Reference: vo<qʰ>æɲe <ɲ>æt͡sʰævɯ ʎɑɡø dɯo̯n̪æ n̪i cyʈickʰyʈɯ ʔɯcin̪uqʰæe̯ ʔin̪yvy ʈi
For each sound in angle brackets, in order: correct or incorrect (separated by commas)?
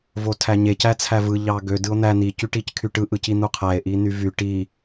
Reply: incorrect, incorrect